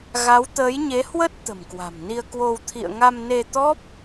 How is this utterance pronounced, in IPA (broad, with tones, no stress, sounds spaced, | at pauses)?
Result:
ɣ a˨˦ w t̪ əː˨˦ j ɲ e˨˦ h w ə˦˥ t̚ t̪ ə̤˨˩ m k w a̤˨˩ m n i˧ ə̯ k w o˧ w t̪ʰ ḭ˧˨ ə̯ ŋ a˧ m n e˧ t̪ ɔ˦˥ p̚